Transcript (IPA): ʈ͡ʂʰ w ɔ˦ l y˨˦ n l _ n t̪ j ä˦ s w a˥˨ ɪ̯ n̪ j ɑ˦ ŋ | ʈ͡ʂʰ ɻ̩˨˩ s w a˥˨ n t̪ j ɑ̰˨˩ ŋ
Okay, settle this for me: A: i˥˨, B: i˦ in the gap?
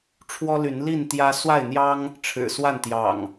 A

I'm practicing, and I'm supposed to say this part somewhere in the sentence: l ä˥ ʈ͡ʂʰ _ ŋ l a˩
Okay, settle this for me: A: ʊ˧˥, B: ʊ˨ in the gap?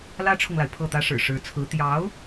B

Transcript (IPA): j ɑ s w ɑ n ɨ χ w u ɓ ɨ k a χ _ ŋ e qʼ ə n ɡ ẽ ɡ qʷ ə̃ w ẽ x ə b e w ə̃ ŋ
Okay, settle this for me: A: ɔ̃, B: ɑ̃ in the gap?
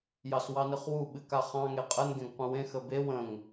B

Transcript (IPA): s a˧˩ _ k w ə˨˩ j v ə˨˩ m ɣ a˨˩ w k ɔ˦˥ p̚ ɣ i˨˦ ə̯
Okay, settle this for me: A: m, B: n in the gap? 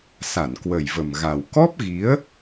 B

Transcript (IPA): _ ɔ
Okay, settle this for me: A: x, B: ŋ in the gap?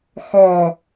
A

